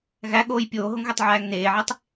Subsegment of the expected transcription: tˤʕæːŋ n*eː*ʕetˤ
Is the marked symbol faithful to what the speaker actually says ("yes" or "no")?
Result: yes